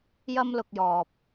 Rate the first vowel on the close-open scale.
open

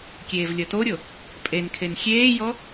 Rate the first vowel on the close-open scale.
mid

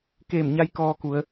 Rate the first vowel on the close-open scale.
mid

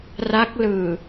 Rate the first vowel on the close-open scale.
open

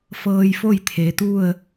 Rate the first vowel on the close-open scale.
mid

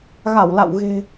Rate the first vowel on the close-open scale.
open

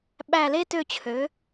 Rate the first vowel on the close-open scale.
open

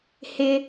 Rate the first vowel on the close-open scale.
close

